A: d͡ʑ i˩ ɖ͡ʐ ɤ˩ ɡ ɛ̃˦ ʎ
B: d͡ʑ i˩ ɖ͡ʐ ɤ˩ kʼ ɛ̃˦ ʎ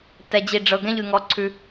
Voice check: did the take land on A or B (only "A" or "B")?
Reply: A